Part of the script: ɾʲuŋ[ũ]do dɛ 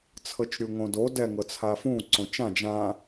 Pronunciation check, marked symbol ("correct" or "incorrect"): incorrect